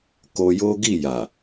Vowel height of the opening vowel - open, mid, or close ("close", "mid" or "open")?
mid